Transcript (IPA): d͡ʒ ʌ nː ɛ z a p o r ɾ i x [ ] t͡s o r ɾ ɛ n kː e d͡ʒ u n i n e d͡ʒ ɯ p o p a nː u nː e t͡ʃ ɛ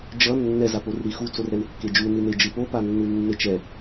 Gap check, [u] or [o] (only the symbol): u